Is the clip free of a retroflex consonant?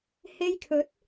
yes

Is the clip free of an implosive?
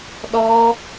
no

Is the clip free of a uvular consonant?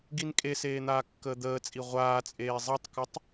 no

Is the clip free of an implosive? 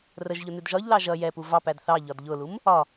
yes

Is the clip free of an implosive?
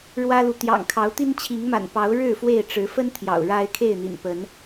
yes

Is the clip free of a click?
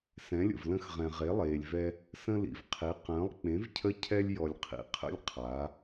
yes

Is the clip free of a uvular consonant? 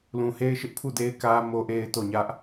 yes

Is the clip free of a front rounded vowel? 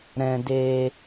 yes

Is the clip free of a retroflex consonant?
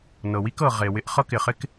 yes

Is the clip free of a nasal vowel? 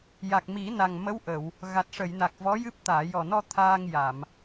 yes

